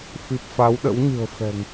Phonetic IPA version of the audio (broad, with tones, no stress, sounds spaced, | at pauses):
f i˨˩ p̚ f a˨˦ w ɗ ə̰˧˥ w ɲ ɨ̤˨˩ ə̯ f ɛ̤˨˩ ŋ